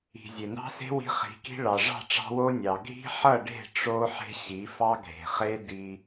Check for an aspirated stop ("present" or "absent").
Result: absent